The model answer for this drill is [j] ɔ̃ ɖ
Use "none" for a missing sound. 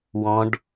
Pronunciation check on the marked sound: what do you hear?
w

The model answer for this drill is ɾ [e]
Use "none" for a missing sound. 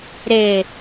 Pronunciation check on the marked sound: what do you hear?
e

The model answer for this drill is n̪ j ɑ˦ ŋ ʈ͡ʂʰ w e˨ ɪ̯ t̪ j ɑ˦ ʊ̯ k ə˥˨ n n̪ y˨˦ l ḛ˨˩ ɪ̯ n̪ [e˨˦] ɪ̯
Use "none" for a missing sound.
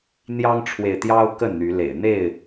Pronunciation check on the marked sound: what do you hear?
e˥˨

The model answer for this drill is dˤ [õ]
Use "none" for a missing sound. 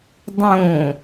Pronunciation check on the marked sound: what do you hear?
õ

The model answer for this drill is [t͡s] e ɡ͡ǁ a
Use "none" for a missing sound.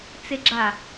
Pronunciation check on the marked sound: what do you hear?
t͡s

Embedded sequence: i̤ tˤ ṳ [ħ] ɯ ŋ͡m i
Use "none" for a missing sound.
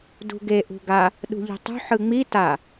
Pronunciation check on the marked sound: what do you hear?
ħ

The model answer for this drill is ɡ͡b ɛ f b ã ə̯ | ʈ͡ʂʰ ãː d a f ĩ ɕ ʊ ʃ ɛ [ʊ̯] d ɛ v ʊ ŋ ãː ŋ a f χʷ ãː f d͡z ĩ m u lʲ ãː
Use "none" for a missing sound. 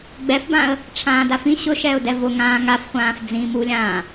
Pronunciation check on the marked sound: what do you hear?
ʊ̯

